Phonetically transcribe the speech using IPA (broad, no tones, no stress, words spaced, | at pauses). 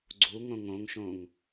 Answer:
ɡ͡ǀu ŋõŋõŋʃõŋ